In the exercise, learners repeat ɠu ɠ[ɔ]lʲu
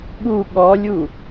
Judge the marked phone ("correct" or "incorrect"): correct